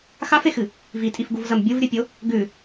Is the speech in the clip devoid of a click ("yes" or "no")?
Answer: yes